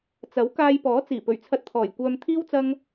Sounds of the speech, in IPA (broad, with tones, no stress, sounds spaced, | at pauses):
t͡s ɐ˨˥ w k aː˧ j p ɔː˨˥ t͡s iː˨˩ p ɵ˨˩ ɥ t͡sʰ ɐ˧ t̚ t̪ʰ ɔː˨˩ j kʷ œː˧ m t̪ʰ iː˥ w t͡s ɐ˧ ŋ